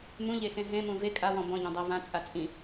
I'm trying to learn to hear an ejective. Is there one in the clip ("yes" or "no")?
yes